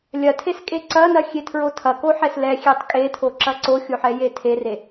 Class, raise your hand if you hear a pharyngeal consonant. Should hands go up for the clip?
yes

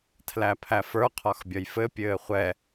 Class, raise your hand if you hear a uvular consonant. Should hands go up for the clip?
yes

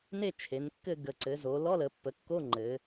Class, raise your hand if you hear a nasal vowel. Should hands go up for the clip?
no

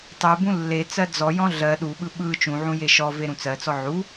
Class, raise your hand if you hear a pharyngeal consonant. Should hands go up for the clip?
yes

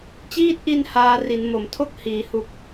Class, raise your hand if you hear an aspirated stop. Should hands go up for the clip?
yes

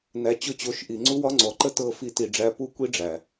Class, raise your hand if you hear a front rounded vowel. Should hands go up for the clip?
no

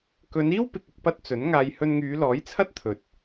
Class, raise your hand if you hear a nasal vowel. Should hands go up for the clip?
no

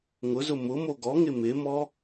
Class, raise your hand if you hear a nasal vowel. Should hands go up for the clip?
no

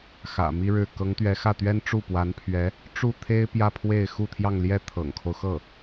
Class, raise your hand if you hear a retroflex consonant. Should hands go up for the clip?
yes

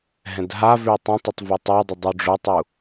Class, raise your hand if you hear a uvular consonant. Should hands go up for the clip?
no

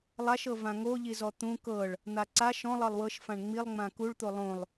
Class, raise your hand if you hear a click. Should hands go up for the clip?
yes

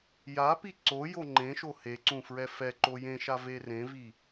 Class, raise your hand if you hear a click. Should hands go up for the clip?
yes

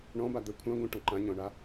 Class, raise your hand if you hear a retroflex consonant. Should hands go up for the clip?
yes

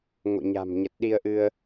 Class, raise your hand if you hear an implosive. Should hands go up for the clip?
yes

